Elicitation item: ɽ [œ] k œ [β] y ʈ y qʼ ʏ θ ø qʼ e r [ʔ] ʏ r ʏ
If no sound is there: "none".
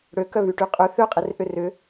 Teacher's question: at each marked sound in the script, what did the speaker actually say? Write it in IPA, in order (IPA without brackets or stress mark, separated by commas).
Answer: ø, β, ʔ